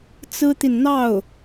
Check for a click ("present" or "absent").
absent